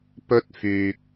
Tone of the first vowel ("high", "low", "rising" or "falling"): high